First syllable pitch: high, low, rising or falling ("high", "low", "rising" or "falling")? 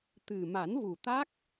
low